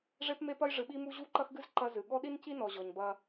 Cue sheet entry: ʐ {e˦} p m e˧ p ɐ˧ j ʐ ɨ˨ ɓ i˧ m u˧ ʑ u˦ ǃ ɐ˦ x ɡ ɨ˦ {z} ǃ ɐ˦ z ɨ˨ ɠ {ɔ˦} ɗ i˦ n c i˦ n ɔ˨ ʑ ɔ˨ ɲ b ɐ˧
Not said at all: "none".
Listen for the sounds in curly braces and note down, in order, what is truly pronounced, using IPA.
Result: e˧, z, ɔ˦

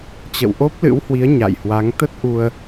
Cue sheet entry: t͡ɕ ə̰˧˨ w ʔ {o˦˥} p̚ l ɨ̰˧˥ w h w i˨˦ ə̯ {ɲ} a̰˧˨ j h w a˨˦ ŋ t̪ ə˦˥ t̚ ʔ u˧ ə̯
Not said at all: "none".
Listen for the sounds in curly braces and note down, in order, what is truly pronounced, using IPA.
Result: o˦˥, ɲ

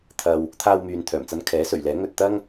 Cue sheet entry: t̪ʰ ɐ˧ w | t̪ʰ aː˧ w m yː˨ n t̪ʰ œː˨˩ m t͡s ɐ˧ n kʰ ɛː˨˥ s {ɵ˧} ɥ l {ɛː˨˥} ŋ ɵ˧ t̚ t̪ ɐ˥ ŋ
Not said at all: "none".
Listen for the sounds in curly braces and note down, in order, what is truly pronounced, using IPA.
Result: ɵ˨˩, ɛː˨˥

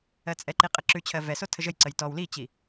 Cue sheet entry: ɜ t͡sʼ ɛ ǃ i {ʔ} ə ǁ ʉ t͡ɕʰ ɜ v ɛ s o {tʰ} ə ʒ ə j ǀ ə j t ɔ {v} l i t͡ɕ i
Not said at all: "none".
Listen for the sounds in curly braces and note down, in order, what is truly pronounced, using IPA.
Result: qʼ, tʰ, w

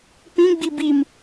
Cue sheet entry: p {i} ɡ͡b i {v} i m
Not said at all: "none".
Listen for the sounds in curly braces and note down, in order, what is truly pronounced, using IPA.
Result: ĩ, b

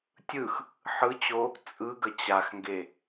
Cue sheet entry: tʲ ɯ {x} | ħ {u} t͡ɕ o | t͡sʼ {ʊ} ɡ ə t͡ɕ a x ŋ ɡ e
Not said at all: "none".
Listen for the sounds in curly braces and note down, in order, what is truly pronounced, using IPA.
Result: x, ɯ, ɯ

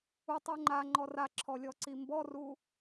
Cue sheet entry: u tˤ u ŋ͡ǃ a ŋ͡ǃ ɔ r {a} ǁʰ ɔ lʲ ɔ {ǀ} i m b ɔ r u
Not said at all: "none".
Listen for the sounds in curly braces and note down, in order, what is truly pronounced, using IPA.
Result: a, ǀ

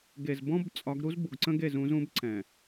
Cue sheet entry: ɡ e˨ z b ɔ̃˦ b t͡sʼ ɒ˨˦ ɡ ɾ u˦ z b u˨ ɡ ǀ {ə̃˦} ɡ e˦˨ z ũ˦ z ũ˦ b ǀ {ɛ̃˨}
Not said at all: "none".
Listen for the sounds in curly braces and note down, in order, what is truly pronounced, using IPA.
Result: ə̃˦, ɛ̃˨

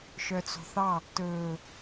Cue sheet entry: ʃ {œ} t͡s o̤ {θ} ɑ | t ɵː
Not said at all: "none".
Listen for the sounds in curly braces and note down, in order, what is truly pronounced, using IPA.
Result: œ, θ

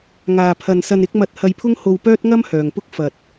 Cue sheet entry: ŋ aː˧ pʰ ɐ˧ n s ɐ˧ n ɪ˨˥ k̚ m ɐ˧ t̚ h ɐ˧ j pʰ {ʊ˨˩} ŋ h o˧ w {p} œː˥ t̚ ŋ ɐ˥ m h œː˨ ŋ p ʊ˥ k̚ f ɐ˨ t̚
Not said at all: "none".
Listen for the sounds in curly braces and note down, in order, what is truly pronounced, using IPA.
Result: ʊ˥, p

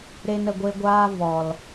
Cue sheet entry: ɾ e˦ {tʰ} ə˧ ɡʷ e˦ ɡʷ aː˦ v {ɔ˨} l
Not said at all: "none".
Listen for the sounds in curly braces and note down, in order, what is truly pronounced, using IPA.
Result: n, ɔ˨

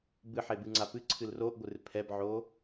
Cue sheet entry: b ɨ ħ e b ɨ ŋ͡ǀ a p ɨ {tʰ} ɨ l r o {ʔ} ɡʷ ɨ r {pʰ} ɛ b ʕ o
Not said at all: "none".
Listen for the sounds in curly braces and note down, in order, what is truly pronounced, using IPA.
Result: ǀʰ, ʔ, pʰ

